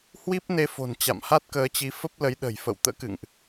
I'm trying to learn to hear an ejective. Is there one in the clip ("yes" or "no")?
no